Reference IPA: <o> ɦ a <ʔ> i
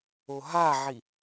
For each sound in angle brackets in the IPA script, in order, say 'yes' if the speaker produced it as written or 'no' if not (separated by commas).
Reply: yes, no